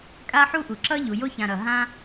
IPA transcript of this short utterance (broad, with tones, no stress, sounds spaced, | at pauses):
kʼ a˦ ħ u˦ ʔ u˨ ǁ ʌ˦ ʎ u˨ j o˦ ç ã˨ ɾ ʌ˨ ɦ ã˦